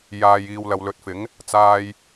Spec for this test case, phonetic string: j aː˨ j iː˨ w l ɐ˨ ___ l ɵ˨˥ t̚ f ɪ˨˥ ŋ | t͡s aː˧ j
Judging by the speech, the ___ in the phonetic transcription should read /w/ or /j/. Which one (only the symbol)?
w